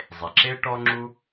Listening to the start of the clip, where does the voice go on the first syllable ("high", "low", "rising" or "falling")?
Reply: low